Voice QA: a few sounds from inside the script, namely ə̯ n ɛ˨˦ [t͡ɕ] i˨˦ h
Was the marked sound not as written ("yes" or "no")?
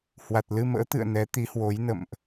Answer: yes